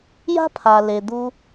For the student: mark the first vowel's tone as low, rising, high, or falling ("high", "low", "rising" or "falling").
high